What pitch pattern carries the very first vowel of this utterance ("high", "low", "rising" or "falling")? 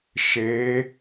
rising